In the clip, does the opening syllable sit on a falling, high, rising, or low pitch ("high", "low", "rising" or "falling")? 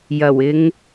low